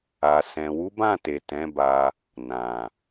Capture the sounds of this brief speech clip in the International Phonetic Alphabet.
a˨ s ɛ̃˨ w u˨˦ b ã˦˨ t e˨ t ɛ̃˨˦ b a˧ | n ã˨

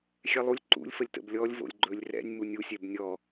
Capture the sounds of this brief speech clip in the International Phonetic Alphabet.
xʲ ɛ lˠ u lʲ ǃ ṵ lʲ f ə lʲ t ə̰ b lʲ ɔ lʲ v o̰ lʲ ɡ͡ǃ ɵ lʲ r ɛ̰ nʲ m u nʲ u sʲ ɛ b nʲ ɔ

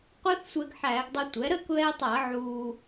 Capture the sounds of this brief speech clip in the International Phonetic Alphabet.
qʷ ɛ˦˥ θ sʷ ɛ˧ ɡ ħ æː˧˩˧ ɡ dˤ ɵ˧ tʷ ɛ˩˥ ɾ əː˥˩ k β ɛː˧ tˤ ɐː˧˩˧ ʕ uː˧

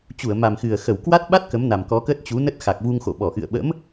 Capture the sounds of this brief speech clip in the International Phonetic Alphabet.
t͡ɕ u˧˩ ə̯ m a˨˩ m x ɨ˨˩ ə̯ x ə˧˩ w k w a˦˥ t̚ ɓ a˦˥ t̚ k ə˨˦ m n a˨˩ m k ɔ˨˦ k ə˦˥ t̚ t͡ɕ u˨˦ n ə˦˥ t̚ x a˨˩ k̚ v u˧ ŋ x o̰˧˨ ɓ ɔ˧˩ ʔ ɨ̰˧˨ ə̯ ɓ ə̰˧˥ m

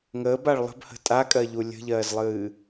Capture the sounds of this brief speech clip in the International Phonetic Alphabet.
ŋ əː b a ɭ lˠ ə̤ b h ə̤ tʼ a kʼ ɜ ʎ u lʲ ə̤ ʎ ɜː z lˠ ɨː

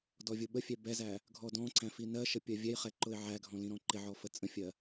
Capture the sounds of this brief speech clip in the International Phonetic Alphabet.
d ɔ vʲ ʊ ɓ ə fʲ ɛ b ɛ z æ | ɡʱ ɔ d ɔ̃ ǀ æ̃ f i n ɜ ʃ ə pʲ ɜ vʲ ɛ j χ ɛ ǃ ʊ ɪ̯ ʕ æ ɡʱ ɔ̃ l ĩ ɾ ɔ̃ ǃ ɪ ʕ ɔ f ə t͡sʼ ə̃ fʲ ɜ

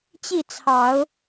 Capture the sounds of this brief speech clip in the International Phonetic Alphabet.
t͡ɕ i˥˩ t͡sʰ ɑ˨˩˦ ʊ̯

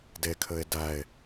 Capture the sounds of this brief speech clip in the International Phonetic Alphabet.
d e kʰ ɘ e̯ d æ e̯

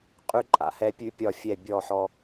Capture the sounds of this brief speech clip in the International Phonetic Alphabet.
qʼ ʉ˦ ǃʼ a̰˨ h ɛ˦ pʲ ʉ˦ pʲ ɒ˦˨ fʲ ɛ˦˨ bʲ ɔ˦˨ ħ ɔ˦

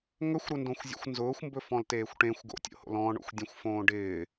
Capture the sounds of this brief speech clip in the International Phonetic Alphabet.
ŋ ɵ xʷ ɾ ɵ n d õ xʷ zʲ o̰ xʷ n z ʊː xʷ m b ɵ f ɔ̃ l t eː xʷ ʈ ẽ xʷ ɡ o̰ tʲ o̰ h o̰ l ɔ̃ ɳ o̰ xʷ dʲ ɛ̃ xʷ f õː ɖ ɪː

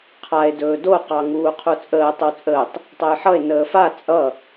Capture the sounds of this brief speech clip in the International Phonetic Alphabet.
qʰ a e̯ d ɵː d o q ɑ ŋ uː qʰ u t͡sʼ əː tˤ ə w t͡sʼ əː tˤ | tˤ ʌ j ħ ʌ e̯ n əː f a t͡sʼ ʌ

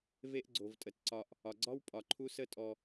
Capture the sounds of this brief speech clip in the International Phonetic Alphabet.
v e˦ ʔ ɡ͡ǀ o˩ v tʼ ə˩ t ǀ ɒ˨ ʔ | ɒ˩ ɡ͡ǀ ɒ˥ w pʼ ɒ˩ ǃʰ u˦ s ə˦ tʼ ɔ˨

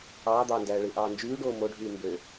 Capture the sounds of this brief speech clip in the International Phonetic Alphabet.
ɑː d̪ ɑː n d æː ɭ ɯ ʔ ɑː n d͡ʒ yː ɖ oː m o ɖʱ yː m b ø

